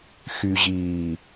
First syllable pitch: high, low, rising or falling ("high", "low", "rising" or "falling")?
low